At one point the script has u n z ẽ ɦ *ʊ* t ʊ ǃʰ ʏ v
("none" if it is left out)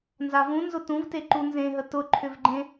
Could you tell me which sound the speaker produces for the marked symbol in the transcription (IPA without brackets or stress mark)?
ə